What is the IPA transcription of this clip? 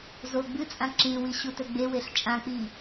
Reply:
z o ɡ͡b ɨ t͡sʼ ã ǁ ĩ w i ɕ u t ɵ ɡ͡b e w e ɬ t͡ʃʼ ã k͡p i

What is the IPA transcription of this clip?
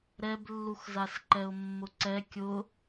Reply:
ɾ ɛ b lː u x z a s ǃ ɛ ʊ̯ mː ʊ ǀ ɛ kʲ ʊ

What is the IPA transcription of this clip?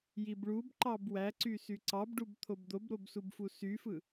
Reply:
j i b ɭ u b ǃ ɑ b w æ ǀ y s y ǀ ɑ b ɖ u b t̪ʰ o b d̪ o b ɾ o b s u b f u s y f ɯ

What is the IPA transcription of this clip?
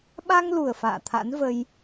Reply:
ɓ a˧ ŋ l u˨˩ ə̯ f a̰ː˧˨ t̪ʰ a̰˧˥ n v ə˧ j

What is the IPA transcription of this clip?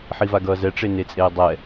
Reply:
ħ i v a ɡ ʌː z ɛ ʈ͡ʂ e n e t͡sʼ eː dˤ ɛ

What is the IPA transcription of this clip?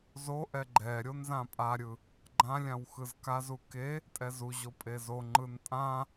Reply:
z o ʔ ɛ ɡ͡ǃ ɛ ɾʲ o n z ã pʼ a ɾʲ ɯ | ɡ͡ǃ ã lʲ ã w x ɯ z k a z u k e | tʼ ɛ z u ʑ o pʼ e z o ŋ͡ǃ ɯ n tʼ ã

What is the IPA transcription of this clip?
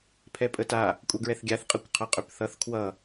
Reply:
pʰ ɛ pʼ ə t a | kʷʼ ʌ ɡ ɹ ɛ θ ɡʲ a θ qʼ ə kʷ qʰ ʌ qʼ ø p θ ʌ θ kʰ w ʌ

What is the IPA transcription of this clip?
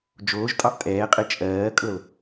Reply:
d͡ʒ oː ʒ tʼ ɑ ʔ tʼ ɛː qʼ e t͡ʃʼ ɜː kʼ ɤ l

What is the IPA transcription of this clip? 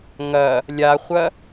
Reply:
ŋ ɐ | lʲ a χʷ ɐ

